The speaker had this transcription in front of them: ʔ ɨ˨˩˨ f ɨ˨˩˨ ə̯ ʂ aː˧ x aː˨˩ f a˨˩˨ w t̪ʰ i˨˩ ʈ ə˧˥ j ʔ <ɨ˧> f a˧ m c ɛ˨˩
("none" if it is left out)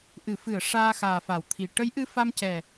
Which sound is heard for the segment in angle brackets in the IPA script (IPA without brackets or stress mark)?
ɨ˧